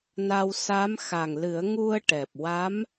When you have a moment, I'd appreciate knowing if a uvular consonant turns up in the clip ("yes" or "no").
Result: no